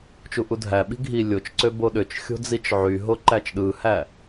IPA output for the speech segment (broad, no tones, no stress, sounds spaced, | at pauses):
t͡ʃ u ʔ u dʱ æ ɓ i̤ ɡʱ i lʲ o t͡ʃ ǀ ø b o ɗ ø t͡ʃ xʲ o̤ d͡z i t͡ʃ ʕ y ɦ o ǃ æ t͡ʃ ɗ ɯ h æ